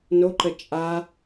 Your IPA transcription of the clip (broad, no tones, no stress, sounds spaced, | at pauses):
n o ǃ ə t͡ʃʼ a